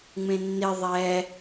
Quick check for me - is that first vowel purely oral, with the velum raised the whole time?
no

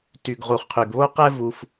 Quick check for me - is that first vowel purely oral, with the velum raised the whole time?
yes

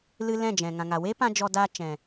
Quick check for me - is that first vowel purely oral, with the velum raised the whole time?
yes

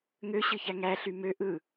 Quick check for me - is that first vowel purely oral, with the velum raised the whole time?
yes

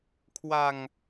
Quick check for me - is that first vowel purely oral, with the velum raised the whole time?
yes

